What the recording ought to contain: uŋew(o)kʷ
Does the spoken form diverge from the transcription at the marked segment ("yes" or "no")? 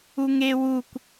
yes